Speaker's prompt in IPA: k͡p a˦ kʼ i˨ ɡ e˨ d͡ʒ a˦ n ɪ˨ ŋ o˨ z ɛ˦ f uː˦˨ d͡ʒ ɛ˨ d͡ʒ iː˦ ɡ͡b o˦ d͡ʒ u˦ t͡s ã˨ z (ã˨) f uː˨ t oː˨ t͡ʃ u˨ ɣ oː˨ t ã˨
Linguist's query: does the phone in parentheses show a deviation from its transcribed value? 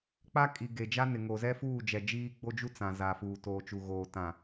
yes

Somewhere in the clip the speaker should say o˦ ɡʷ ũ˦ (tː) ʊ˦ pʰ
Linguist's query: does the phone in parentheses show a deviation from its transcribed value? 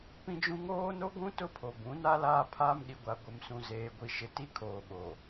yes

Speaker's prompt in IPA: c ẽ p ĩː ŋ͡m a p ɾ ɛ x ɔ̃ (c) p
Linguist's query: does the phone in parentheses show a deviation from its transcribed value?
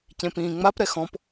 yes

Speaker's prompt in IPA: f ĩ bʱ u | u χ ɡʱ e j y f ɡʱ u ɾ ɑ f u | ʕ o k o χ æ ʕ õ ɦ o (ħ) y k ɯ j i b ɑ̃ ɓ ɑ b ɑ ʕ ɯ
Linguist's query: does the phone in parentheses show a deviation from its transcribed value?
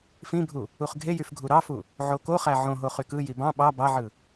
yes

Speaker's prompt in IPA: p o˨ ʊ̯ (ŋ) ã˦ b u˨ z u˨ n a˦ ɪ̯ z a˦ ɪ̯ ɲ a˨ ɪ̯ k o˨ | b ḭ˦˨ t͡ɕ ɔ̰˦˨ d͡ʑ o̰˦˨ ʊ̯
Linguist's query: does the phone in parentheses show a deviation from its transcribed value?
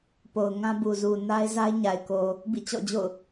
no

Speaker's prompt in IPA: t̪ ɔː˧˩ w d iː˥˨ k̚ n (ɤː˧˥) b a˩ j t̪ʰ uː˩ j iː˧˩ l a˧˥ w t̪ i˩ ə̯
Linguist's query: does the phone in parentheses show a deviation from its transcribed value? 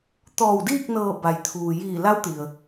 yes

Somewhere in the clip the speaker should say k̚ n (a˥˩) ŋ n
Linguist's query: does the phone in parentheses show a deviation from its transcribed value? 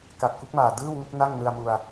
no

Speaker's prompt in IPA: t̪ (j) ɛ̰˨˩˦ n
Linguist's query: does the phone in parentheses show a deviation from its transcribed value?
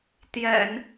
no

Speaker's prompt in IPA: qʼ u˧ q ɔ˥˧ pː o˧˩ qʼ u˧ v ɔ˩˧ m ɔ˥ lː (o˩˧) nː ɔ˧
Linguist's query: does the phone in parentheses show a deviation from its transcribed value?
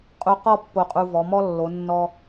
no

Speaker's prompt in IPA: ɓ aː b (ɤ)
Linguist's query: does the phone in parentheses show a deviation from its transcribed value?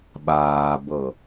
no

